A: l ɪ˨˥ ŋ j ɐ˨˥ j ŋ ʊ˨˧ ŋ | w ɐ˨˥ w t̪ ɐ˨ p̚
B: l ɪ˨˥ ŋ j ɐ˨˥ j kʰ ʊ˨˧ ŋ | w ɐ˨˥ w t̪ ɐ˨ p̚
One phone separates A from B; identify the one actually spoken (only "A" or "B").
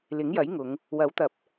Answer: A